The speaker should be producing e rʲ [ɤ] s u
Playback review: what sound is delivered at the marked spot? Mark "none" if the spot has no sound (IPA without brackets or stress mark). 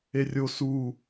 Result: o